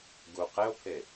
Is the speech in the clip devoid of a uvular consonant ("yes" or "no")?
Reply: no